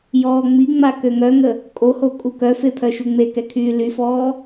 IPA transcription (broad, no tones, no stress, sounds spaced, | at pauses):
j ɔː ŋ͡m i ŋ͡m a k ø ŋ œ ŋ ə | kʼ o h o kʼ u k œ f e pʰ œ ʃ u ŋ͡m e k ɛ kʰ yː l y f ɔː